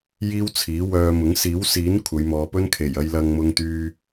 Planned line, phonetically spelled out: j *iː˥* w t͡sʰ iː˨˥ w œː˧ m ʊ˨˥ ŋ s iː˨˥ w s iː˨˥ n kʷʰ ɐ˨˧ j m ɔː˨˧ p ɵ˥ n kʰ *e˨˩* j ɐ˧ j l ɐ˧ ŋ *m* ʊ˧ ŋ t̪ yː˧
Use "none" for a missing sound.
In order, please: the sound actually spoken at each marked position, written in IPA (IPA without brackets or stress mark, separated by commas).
iː˥, e˨˩, m